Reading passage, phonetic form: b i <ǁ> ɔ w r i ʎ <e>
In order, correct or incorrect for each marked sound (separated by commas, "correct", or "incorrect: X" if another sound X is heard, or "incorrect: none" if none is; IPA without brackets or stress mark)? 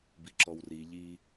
correct, incorrect: i